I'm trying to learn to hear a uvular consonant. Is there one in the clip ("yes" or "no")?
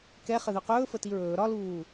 yes